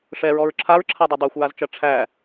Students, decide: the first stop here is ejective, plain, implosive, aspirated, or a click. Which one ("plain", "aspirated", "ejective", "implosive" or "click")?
click